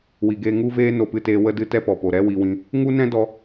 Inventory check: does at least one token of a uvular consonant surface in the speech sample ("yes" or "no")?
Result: no